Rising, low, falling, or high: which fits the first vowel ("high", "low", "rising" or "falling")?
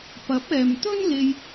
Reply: rising